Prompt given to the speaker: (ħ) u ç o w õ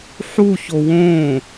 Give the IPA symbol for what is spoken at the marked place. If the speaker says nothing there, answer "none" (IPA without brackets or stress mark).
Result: ħ